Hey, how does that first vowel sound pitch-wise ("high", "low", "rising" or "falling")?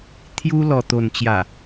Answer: high